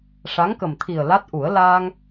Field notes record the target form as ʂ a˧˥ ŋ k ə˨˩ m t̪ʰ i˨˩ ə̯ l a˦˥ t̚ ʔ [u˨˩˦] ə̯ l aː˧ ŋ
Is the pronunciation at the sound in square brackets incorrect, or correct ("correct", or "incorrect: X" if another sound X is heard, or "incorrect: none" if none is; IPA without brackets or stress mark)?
correct